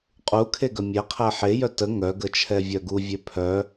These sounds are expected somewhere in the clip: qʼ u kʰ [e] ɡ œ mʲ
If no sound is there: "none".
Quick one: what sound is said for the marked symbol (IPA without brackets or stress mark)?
e